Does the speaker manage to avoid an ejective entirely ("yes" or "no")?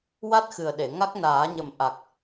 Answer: yes